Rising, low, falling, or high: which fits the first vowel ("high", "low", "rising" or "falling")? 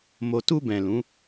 low